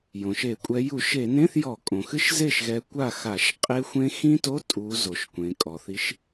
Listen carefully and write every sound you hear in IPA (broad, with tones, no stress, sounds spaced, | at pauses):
j õ˩ ʃ e˧˩˧ kʷʼ ɛ˨˦ j u˧˩˧ ʃ e˧˩˧ n ẽ˧˥˧ θ j ɔ˧˩˧ kʼ õ˩ x ɨ˦˥ ʃ z e˥˩ ʃ ɣ ɛ˨˦ kʷ a˥˩ x a˧˩˧ ʃ qʼ e˦˥ xʷ ẽ˦˥ x ĩ˦˥ t o˧˥˧ tʼ u˨˦ z o˩ ʃ kʷ ẽ˩ kʼ ɔ˩ θ i˨˦ ʃ